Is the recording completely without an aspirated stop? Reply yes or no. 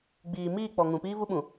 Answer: yes